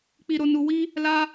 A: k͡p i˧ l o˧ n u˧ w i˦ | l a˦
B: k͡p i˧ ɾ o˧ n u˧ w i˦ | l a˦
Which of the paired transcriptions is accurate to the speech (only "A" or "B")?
B